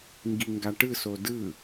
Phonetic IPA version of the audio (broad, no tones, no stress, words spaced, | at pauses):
ŋɡiŋɡaʈɯ sodɯ